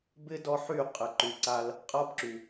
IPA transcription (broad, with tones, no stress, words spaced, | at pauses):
bɪ˦ dɔ˦ħy˦˨ qʼɪ˨ǃy˨ǀa˧l | qʼa˦bǁy˨